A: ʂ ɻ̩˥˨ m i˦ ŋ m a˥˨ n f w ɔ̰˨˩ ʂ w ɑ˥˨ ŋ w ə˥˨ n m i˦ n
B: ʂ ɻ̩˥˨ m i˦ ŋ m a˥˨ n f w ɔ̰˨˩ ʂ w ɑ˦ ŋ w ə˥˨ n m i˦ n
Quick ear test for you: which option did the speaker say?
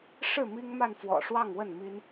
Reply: A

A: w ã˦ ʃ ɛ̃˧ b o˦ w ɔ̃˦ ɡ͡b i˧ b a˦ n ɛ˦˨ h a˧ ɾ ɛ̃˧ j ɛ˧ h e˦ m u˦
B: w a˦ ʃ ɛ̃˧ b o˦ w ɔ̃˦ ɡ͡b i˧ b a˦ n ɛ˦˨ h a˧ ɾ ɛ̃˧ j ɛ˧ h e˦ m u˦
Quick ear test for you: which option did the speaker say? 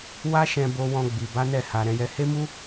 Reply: B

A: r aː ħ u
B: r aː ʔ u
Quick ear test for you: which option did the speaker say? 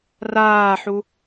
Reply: A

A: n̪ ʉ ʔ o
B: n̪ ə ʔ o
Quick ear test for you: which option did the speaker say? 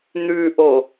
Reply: A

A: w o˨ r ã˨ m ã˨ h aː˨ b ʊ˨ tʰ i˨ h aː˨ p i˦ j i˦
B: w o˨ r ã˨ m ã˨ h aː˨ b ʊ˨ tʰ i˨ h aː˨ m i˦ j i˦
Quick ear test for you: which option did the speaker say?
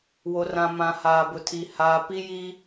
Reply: A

